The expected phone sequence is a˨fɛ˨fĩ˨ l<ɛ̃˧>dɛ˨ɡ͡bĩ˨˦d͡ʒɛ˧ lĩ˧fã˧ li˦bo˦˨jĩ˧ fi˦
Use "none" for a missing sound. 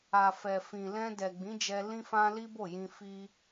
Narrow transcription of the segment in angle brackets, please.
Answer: ɛ̃˧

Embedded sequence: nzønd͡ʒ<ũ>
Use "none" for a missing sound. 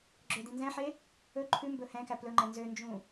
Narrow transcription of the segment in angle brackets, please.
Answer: ũ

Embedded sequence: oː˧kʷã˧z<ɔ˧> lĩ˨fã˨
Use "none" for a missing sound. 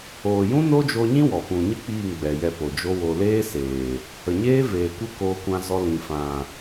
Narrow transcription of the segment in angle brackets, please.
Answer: ɔ˧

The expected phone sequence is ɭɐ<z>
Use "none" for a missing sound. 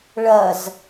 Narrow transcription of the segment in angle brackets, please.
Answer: z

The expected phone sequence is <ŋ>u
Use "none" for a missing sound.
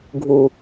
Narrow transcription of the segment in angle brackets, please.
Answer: ɡʱ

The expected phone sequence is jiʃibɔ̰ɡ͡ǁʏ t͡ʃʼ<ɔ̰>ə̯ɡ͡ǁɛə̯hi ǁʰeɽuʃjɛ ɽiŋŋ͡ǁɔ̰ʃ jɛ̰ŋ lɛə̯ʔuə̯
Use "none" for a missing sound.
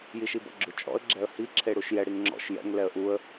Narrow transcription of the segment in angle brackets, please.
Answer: ɔ̰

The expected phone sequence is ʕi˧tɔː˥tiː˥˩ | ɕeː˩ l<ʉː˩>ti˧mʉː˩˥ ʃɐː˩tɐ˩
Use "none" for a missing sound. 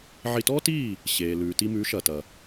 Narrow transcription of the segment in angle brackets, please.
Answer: ʉː˩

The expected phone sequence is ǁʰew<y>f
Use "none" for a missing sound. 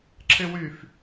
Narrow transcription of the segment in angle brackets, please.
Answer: y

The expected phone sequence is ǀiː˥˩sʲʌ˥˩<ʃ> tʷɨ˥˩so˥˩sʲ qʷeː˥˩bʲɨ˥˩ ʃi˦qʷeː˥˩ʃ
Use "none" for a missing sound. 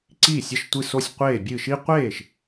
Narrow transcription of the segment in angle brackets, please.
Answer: ʃ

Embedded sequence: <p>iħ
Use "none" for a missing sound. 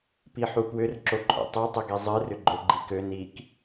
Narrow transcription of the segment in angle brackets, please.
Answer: p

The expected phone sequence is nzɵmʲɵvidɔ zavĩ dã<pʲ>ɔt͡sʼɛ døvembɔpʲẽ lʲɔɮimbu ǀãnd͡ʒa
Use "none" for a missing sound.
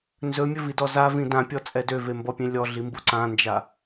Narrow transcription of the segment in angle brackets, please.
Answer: pʲ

